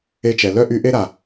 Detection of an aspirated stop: absent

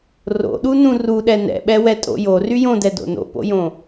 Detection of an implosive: present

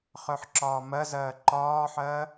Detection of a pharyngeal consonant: present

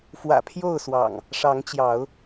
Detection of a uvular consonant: absent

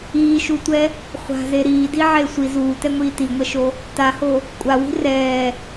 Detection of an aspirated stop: absent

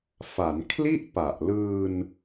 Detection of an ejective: absent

